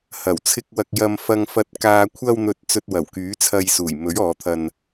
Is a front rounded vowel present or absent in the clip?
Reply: present